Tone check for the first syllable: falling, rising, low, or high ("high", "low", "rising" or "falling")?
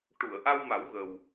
low